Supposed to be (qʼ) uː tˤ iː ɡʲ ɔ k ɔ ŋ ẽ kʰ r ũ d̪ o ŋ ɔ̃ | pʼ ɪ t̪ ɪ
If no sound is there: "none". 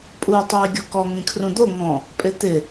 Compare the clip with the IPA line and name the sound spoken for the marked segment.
pʼ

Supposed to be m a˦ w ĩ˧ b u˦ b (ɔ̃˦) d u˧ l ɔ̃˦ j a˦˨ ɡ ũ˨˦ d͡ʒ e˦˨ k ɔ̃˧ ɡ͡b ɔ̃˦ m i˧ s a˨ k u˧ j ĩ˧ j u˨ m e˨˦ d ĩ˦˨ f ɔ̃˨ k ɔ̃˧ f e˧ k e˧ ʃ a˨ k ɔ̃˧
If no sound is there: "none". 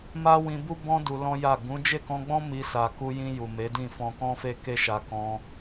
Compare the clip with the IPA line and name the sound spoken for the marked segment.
ɔ̃˦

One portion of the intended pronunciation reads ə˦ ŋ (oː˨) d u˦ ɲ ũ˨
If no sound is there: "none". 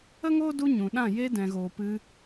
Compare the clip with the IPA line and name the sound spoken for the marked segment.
oː˦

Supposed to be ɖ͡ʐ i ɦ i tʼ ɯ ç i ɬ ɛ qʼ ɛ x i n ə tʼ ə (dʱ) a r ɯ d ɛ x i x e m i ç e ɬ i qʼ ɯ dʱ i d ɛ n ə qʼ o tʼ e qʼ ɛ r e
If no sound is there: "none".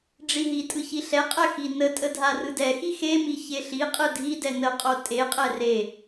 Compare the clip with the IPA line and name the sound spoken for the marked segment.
dʱ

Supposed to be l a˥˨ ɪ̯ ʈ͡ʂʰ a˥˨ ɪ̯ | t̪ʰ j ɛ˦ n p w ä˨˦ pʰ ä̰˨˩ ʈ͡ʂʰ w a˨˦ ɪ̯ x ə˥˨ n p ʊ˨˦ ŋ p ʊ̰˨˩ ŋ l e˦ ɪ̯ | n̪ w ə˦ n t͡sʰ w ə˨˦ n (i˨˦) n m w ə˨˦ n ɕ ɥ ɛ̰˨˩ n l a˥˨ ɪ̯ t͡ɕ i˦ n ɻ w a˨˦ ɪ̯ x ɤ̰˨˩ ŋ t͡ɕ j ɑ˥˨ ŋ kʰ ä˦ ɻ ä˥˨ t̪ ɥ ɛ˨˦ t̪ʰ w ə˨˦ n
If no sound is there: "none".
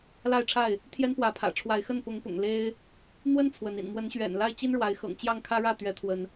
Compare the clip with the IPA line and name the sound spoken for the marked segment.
ḭ˨˩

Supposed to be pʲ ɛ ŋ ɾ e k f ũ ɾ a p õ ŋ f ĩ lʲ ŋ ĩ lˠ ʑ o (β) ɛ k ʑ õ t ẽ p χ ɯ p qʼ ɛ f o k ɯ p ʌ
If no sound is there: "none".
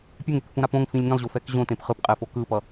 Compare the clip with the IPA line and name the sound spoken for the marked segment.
f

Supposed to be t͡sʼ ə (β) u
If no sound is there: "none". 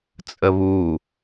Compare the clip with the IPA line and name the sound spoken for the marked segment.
β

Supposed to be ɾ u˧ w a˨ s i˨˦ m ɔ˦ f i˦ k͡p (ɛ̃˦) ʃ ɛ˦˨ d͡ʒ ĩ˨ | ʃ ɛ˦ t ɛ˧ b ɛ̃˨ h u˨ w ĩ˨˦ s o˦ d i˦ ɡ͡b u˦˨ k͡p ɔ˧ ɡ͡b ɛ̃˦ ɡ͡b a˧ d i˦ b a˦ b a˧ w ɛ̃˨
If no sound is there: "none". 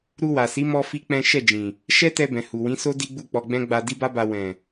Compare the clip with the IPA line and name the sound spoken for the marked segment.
ɛ̃˦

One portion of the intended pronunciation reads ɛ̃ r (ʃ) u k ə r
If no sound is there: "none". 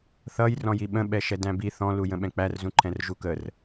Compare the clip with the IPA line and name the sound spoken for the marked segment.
ʒ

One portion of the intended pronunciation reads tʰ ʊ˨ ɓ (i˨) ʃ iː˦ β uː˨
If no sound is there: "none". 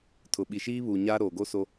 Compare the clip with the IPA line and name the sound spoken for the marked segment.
i˨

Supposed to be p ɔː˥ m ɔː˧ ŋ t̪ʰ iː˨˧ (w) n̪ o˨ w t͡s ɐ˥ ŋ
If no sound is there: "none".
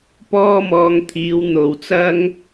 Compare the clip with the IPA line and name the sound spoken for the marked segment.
w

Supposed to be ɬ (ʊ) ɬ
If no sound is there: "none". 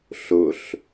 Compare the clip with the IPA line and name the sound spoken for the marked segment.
ʊ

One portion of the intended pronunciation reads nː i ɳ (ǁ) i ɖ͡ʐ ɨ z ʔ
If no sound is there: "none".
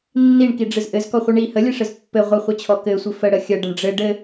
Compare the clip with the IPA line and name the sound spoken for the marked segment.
k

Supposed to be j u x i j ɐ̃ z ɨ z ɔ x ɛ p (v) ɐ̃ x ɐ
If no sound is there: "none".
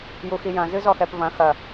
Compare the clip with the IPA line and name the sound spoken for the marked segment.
v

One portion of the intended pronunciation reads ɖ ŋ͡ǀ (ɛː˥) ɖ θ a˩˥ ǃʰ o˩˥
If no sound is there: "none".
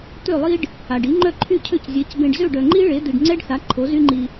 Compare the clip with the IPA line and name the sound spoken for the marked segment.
ɛ˥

